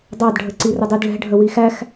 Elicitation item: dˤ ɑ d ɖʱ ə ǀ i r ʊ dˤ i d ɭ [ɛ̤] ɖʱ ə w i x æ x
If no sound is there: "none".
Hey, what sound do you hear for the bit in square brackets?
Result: ɛ̤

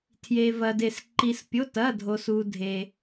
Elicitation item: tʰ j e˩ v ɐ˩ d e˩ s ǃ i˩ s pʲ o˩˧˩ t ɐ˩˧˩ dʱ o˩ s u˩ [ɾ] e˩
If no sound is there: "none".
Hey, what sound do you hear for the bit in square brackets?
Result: dʱ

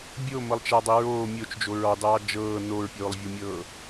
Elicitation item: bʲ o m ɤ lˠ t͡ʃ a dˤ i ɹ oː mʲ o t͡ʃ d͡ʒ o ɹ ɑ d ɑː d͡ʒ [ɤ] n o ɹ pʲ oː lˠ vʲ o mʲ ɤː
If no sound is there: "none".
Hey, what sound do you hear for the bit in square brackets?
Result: ɤː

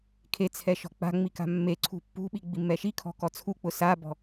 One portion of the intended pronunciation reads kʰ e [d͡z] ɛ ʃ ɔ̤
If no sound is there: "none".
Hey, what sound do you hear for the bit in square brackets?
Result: t͡sʰ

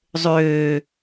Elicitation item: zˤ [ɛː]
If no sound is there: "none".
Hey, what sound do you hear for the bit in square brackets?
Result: øː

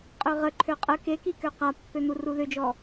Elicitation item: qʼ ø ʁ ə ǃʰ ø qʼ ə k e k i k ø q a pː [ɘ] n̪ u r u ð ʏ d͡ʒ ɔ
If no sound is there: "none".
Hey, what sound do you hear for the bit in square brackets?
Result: ø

